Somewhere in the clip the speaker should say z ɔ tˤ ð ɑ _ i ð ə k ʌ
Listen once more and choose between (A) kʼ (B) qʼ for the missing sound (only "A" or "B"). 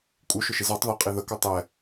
B